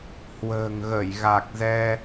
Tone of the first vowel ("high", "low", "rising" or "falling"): low